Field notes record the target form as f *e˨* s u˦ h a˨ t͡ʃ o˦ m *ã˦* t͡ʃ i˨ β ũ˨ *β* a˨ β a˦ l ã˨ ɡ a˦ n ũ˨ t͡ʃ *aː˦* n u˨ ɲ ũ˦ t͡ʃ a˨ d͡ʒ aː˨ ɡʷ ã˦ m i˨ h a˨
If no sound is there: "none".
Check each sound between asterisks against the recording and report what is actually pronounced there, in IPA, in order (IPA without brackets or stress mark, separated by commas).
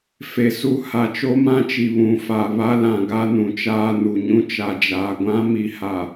e˨, ã˦, f, aː˦